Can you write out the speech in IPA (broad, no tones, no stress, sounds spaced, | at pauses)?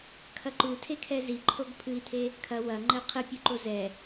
kʰ ɐ ǃ u tʰ e kʰ ɛ z i ǃʰ o ɡ pʰ ɨ i̯ t̪ʰ e | kʰ ɐ w ɐ ŋ͡ǃ ɘ u̯ qʰ ɨ pʲ u ǃ o z ɛ